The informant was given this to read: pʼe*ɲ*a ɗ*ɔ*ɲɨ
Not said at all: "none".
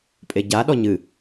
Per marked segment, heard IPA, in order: ɟ, ɔ

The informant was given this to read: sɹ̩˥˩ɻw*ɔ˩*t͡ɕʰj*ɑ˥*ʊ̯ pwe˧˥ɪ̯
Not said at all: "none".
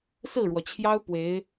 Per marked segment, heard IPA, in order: ɔ˩, ɑ˥

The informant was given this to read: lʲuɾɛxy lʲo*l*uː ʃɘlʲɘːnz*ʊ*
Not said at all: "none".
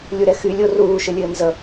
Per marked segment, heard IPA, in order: r, ə

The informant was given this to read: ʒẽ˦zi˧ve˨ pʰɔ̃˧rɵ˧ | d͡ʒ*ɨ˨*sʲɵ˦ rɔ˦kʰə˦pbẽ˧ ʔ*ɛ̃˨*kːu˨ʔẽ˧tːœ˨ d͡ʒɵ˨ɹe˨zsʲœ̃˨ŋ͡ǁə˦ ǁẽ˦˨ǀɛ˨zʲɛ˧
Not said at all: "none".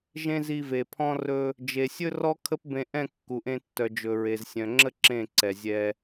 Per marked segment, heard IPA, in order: e˨, ɛ̃˦˨

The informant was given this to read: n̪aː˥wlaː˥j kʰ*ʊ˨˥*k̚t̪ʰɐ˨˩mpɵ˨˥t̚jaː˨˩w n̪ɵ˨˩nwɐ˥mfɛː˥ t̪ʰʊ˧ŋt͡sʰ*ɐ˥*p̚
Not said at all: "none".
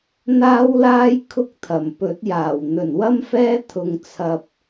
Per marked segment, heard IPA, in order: ʊ˥, ɐ˧

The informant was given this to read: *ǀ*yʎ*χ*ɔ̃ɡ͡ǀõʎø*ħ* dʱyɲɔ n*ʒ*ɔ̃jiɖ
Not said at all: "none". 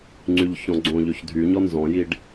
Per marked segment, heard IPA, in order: ŋ͡ǀ, ç, ç, z

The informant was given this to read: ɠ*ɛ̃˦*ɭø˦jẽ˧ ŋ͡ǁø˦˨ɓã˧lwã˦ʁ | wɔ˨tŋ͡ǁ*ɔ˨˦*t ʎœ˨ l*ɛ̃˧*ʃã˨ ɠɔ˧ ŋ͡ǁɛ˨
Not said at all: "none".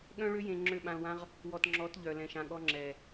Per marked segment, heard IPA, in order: œ̃˦, ɔ˨˦, ɛ̃˨

